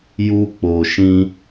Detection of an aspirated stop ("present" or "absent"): absent